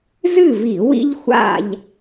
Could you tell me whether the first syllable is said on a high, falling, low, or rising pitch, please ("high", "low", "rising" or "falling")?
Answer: falling